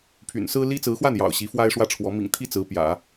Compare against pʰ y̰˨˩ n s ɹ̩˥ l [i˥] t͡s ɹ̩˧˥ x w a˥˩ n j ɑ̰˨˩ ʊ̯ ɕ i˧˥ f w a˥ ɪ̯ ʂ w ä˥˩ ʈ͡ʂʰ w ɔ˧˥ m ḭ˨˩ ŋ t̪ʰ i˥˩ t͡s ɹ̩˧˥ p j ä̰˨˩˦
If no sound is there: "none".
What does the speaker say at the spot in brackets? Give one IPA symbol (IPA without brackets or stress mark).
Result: i˥